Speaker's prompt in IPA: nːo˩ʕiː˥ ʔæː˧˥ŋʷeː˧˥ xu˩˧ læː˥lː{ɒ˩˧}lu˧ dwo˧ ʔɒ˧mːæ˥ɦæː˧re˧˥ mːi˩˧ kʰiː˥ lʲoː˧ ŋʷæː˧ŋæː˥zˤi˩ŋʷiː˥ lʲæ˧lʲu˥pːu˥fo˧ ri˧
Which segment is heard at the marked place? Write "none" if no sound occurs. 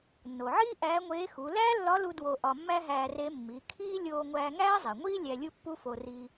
ɒ˧˥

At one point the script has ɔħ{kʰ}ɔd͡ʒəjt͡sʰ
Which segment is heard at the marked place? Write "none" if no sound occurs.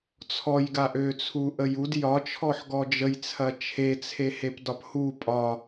ɡ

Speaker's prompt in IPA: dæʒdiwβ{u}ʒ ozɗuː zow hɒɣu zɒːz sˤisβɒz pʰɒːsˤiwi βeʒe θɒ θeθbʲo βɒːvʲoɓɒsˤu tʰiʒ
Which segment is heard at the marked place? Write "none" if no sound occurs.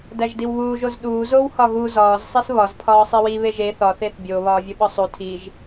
uː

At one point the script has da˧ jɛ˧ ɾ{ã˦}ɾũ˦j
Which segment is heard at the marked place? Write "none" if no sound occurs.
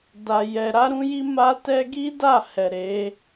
a˦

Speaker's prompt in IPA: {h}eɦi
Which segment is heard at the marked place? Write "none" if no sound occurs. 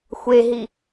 xʷ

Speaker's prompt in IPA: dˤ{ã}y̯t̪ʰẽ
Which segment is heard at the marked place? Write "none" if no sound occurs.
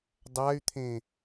a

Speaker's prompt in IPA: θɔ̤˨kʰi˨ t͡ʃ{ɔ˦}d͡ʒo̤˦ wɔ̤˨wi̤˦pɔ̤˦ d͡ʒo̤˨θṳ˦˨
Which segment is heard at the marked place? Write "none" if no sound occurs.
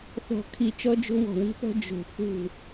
ɔ˦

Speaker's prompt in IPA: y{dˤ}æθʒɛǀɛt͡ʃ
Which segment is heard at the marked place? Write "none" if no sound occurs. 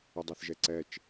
dˤ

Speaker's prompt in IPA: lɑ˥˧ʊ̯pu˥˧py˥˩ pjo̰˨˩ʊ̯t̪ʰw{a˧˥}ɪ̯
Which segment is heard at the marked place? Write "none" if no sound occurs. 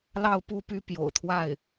a˥˩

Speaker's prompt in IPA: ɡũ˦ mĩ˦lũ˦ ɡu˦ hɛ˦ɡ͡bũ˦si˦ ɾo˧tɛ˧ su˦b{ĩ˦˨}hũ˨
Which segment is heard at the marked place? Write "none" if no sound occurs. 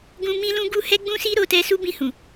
ĩ˦˨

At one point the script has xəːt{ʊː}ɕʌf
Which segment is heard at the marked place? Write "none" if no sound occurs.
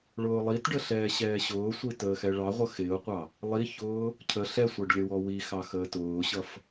ʊː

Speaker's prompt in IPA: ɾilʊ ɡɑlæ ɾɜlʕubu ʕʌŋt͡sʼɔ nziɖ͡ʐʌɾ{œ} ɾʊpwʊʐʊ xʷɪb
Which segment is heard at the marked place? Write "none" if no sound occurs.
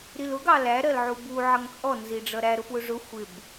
æ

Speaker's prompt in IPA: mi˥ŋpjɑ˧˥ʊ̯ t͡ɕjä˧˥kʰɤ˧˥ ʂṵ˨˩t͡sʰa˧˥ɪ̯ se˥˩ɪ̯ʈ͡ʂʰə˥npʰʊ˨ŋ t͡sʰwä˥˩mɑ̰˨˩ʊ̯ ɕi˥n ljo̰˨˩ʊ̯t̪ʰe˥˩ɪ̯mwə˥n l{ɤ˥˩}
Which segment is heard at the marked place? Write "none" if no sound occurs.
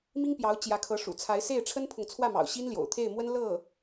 ɤ˥˩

